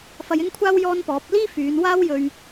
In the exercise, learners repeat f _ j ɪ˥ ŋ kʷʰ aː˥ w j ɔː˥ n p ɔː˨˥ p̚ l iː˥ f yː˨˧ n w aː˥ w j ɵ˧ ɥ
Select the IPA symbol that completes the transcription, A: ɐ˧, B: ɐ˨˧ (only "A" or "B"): A